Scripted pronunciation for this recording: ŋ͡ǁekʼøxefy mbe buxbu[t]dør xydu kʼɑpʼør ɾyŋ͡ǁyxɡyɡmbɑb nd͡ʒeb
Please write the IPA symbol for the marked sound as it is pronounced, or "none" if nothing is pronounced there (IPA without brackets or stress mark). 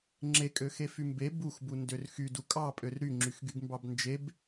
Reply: n